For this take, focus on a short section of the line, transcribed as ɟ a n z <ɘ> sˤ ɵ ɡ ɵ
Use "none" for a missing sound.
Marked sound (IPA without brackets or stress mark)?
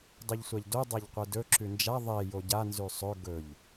ʉ